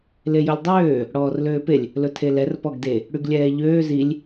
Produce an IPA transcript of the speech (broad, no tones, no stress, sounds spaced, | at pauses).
l e j ɵ lʲ dˤ øː | ɽ ɔː r l øː p e lʲ | l ɵ tʰ e l ɛ r p ɔ ɡ d e | ɽ y ɡ lʲ ɛː ʎ øː z i lʲ